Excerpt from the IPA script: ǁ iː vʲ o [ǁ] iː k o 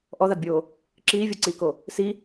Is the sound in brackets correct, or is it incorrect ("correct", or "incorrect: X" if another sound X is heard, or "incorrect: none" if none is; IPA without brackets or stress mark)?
incorrect: ǀ